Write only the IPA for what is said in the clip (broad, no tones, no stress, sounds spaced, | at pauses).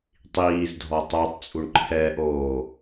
tˤ iː z dʱ ɔ tˤ o tˤ t͡sʼ u ɳ ǃʰ ɛː ʔ oː